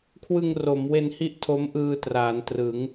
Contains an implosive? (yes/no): no